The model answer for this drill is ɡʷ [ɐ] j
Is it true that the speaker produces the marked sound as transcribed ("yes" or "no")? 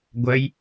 yes